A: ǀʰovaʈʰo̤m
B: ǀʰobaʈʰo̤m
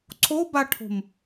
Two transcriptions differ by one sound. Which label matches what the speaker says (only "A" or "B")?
B